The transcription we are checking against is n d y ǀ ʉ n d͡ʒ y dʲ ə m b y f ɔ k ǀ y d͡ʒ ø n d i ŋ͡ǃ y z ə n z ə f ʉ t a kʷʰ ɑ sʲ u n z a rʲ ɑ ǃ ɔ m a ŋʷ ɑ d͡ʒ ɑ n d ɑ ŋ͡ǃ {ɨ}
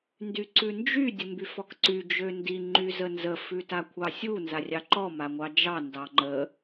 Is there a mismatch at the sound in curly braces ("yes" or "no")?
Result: yes